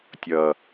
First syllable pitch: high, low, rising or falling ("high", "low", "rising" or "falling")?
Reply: low